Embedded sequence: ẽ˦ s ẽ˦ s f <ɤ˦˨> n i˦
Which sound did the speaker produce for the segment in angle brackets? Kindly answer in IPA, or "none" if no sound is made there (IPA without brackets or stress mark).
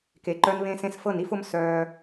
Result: ɤ˦˨